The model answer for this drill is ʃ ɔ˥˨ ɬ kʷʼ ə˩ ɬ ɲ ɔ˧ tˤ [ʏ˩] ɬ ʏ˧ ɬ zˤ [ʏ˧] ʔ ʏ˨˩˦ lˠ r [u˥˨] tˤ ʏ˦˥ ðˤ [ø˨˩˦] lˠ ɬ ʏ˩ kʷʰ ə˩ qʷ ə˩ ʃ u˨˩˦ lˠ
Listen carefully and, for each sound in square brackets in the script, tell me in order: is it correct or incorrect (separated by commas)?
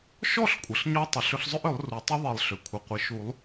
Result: correct, incorrect, incorrect, incorrect